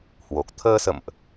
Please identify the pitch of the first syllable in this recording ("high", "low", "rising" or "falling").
low